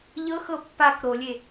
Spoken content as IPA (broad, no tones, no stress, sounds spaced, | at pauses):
ʎ ɤ x ɤ pː a k ɾ o lʲ e